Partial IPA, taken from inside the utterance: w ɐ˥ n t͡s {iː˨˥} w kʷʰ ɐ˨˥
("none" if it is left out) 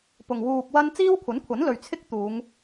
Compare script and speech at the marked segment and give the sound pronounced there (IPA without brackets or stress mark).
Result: iː˥